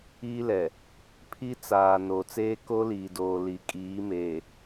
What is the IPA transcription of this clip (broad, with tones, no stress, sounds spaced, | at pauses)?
iː˦ l ɛ˨ | pʰ i˦ t͡s aː˨ n o˨ t͡s eː˦ k o˦ l iː˨ d oː˨ l i˨ kʼ iː˨˦ m eː˨